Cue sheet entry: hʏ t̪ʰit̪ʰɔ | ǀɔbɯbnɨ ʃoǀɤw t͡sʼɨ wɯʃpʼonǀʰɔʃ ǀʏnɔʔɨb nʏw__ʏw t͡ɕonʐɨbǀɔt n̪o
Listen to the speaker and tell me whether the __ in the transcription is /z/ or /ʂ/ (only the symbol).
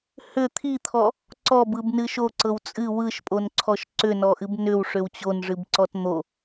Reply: ʂ